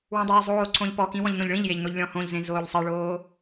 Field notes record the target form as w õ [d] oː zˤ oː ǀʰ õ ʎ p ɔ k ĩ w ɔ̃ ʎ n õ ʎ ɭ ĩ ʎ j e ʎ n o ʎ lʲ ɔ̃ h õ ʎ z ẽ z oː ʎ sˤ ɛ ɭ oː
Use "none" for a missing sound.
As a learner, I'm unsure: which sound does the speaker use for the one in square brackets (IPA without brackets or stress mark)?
dˤ